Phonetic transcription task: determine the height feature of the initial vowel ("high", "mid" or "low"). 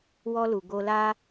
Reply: mid